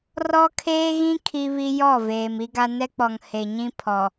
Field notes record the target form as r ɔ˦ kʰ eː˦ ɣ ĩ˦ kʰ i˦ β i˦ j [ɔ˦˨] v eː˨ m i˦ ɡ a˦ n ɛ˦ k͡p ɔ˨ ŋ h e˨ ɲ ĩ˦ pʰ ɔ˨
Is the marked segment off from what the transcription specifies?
no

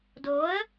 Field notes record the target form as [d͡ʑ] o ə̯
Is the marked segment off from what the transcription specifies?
yes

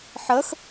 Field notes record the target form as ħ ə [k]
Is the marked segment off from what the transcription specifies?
yes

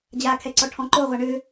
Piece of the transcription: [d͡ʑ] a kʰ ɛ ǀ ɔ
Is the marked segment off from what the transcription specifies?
no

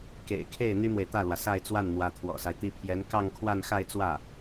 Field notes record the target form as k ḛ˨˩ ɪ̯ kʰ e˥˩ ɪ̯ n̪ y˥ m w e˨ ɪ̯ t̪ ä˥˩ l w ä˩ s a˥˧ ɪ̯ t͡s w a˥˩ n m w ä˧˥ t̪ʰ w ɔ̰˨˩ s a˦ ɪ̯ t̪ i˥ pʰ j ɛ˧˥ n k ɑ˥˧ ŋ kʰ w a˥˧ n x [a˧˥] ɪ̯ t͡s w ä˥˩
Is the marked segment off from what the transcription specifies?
yes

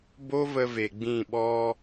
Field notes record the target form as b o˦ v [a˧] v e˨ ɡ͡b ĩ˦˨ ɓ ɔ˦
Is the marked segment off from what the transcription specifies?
yes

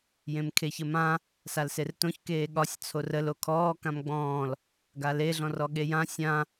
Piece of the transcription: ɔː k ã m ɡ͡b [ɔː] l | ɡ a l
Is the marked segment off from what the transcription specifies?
yes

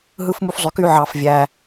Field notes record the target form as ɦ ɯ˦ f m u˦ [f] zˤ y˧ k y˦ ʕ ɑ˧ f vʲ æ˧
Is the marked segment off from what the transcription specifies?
no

